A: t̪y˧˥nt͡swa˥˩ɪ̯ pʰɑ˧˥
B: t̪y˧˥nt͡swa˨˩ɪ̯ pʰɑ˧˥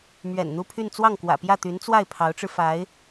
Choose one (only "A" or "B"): A